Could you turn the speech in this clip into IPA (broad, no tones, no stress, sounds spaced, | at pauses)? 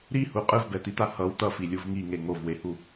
ɾ i h u qʼ ɯ v b ɛ t̪ i t̪ a h ʌ w t̪ ʌ f i lʲ u v ŋ i ŋ e ŋ o v w e h u